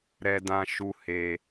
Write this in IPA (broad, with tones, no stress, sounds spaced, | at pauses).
ɾ ɛ˨ d ã˨ ʃ u˨ h e˨